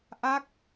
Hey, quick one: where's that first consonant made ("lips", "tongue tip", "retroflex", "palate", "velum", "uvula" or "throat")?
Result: throat